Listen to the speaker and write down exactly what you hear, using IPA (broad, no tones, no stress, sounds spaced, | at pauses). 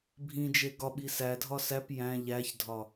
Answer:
bʱ ĩ d͡ʒ e ɡ ɒ ɓ i s æ dʱ ɒ s æ p j æ̃ ʎ æ ç dʱ ɒ